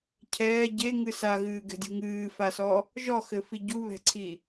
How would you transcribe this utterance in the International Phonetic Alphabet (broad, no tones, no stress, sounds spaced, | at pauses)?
cʰ ɛː ɟ e ŋ ɨ s a ɣ ɨː ɡ ɛ̤ dʲ ṳ ŋ ɨː f a s ɔ | ʒ ɔ x ɘ f i ɟ u β ɛ̤ ǀʰ i